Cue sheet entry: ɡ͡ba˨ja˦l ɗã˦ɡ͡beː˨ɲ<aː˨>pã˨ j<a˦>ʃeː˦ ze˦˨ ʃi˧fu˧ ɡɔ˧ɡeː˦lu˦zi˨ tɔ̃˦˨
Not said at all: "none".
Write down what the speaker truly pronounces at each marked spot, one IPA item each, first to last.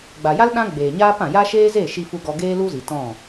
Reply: aː˦, a˦

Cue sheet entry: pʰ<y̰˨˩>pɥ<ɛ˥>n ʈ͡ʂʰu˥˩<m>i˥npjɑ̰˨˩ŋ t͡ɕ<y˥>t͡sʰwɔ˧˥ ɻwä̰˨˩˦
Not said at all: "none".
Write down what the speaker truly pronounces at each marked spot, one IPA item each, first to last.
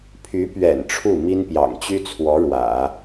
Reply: y˧˥, ɛ̰˨˩, m, y˥

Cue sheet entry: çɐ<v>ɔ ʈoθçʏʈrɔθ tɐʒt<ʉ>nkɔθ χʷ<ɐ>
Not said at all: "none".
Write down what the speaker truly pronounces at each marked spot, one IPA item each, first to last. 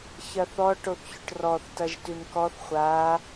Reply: θ, ʉ, a

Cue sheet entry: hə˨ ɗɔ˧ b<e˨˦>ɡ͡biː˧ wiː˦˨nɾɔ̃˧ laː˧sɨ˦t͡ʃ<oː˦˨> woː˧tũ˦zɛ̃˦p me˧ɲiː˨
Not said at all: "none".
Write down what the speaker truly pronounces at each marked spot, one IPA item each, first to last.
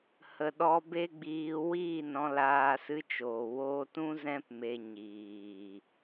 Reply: e˦, oː˨

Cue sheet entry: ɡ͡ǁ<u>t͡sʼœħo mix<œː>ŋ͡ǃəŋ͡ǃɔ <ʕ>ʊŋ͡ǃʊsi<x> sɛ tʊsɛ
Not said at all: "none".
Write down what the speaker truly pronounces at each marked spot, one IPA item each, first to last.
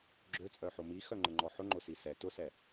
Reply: ø, œ, ħ, none

